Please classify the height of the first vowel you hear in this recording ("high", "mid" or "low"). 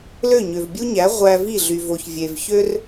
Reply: mid